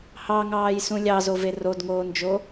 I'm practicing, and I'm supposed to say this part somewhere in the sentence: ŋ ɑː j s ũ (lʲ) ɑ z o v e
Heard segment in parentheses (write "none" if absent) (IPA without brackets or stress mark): lʲ